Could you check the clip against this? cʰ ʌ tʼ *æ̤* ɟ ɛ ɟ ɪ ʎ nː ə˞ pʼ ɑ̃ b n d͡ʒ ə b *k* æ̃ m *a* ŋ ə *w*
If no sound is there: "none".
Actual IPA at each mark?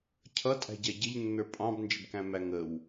æ̤, k, æ, w

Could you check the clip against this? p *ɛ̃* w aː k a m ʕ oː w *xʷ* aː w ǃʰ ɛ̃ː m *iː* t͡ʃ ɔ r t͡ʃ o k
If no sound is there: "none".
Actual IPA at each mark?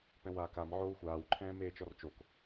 ɛ̃, xʷ, eː

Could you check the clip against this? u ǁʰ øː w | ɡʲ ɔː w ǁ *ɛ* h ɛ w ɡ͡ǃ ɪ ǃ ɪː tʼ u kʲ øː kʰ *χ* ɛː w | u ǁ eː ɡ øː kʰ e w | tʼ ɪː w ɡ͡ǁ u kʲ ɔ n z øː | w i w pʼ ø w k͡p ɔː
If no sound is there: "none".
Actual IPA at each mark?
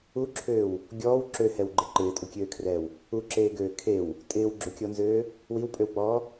ø, r

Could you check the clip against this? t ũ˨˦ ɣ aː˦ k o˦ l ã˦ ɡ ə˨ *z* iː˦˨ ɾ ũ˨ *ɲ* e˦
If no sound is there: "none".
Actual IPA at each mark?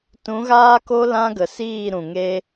s, ŋ

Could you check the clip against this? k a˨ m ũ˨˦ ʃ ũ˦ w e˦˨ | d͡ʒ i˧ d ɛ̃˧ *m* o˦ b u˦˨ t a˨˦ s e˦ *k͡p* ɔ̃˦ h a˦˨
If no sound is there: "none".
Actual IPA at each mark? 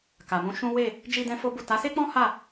f, k͡p

